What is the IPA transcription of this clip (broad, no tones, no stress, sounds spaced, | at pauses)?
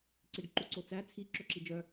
ǀ i ɖ ǃ u ǀ o t͡s æ t͡sʰ i ǁ ɵ ǁ i d͡ʒ œ